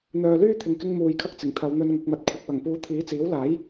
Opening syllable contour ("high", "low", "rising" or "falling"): low